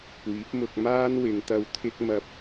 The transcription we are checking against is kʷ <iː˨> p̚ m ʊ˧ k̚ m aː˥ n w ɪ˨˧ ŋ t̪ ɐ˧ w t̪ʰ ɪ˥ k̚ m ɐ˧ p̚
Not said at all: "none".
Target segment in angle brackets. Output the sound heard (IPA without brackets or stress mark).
iː˨˥